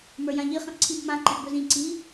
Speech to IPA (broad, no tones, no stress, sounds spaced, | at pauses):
m ə˞ j ã ʎ i χ ĩ ʔ ǀʰ i b m ã ǃ ɛ̃ ʔ b ɵ z ĩ ǀ i